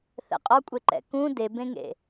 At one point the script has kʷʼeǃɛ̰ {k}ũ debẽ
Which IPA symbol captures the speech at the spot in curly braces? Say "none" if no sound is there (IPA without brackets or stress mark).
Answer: k